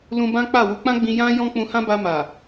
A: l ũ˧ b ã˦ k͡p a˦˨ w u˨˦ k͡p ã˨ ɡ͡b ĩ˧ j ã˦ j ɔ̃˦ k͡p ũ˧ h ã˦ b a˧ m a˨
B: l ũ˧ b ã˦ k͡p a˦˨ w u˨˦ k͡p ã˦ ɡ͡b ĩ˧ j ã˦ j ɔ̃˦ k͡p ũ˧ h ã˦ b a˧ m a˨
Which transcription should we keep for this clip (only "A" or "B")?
B